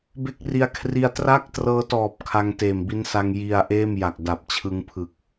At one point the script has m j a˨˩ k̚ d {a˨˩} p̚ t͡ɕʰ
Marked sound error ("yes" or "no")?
no